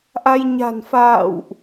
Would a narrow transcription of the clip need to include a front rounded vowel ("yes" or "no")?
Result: no